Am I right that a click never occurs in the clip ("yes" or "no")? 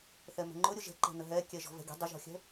no